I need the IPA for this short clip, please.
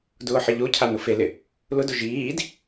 dʊːħɪʎocʰa nʊfelɪ | lʊdʊ ʒiːd

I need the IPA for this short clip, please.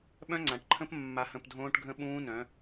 ɓœ̃˦ŋ͡ǀã˨ʈǃʰə̃˦p mːa˨hə̃˨p dʱõː˦ʈɡʱə̃˦ɓũː˦nœ̃˨˦

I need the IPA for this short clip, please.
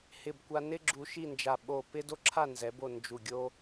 hɪ˧˩bkʷa˧ nɪ˥ɡ͡ǁu˧ ʃi˥˧nd͡ʒa˧˩ ɓo˧˩pɪ˥ do˥ǁʰa˥˧nzɛ˩˧bo˧˩ nd͡ʒu˧˩ɡʲo˥

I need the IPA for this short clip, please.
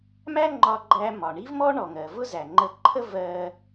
mæ˥ŋ͡ǃɒ˧ɡ͡ǃæ˧mɒ˩ ɳi˥vmɔ˥ ɳɔ˩ŋɜ˩vʊ˥zæ˩ ŋ͡ǃə˧ǃʰə˥ vɜ˧

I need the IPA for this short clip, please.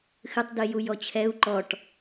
xɨtˤdi jujɔt͡ɕʰɛu̯ ǃɔʈ

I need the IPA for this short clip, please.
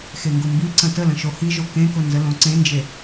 xeŋɡʊmbiǀə̃ tələ̃ ʃohiʒo kẽkʊ nzəlõǀẽnd͡ʒe

